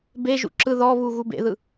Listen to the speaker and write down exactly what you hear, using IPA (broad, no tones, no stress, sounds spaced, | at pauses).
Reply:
b e ʒ ṵ ǁ ɯ ð ɔ β u ɣ u b ḛ ð ɯ